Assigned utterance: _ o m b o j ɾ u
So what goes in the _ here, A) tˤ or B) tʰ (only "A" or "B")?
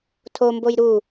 B